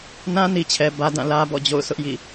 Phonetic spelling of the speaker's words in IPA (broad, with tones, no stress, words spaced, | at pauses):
nã˦ni˨t͡ɕʰɛ˨ bä˦dã˦˨ lä˦bɔ̰˦˨ d͡ʑo̰˦˨ʊ̯sʰʊ˦ʔ jḭ˦˨